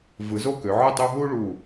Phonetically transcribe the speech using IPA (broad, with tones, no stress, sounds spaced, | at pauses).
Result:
v ɯ˩˧ z o˥˩ k ø˩˧ ʕ ɯ˥˩ tˤ u˦ ɦ u˦ ɭ u˧˩